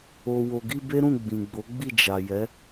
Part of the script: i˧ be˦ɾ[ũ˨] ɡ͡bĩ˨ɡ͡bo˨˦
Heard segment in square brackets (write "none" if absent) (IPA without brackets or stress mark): ũ˦˨